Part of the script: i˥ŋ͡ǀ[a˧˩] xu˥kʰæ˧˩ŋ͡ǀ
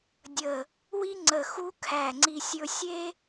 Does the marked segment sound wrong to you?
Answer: yes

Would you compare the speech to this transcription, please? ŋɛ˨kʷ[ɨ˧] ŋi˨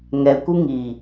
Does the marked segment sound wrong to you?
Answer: no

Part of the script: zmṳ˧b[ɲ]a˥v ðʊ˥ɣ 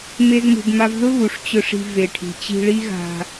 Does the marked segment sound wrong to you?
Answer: yes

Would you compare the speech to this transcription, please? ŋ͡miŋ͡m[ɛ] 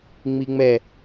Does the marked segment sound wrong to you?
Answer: no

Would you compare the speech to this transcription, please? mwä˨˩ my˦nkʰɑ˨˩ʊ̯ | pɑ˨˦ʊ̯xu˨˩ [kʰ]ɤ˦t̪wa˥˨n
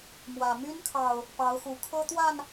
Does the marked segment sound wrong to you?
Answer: no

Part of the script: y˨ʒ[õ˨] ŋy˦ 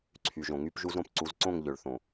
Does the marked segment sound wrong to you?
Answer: no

